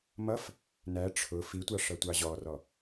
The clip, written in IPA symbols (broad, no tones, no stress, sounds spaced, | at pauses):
m ʌ f | n æ ʈ͡ʂʰ ʊ f i tʷ ɑ ʂ ʌ tʷ ɑ ʑ ɔ r ɔ